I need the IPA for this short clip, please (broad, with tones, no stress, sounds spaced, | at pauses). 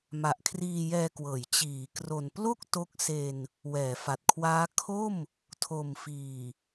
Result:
m a˨˩ ʔ kʰ r iː˧ j ɛː˧ k w ɤː˩˦ j t͡ɕ iː˩˦ k r o˨˩ n p l o˥˩ k̚ t o˦˥ k̚ s e˧ n | w ɛː˩˦ f a˨˩ t̚ kʰ w aː˦˥ kʰ o˥˩ m | tʰ o˨˩ m f iː˨˩